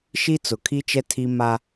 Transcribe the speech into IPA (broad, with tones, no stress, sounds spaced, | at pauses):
ʃ i˦ t͡s ʊ˨ kʰ i˦ t͡ʃ ɛ˦ tʰ i˦ m a˦